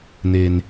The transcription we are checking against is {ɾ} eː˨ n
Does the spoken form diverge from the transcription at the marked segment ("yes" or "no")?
yes